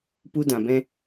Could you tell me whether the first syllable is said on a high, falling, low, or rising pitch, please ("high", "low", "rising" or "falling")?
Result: high